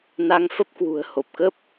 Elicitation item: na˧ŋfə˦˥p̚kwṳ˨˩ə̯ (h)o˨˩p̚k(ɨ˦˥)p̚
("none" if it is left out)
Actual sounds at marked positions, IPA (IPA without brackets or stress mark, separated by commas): h, ə˦˥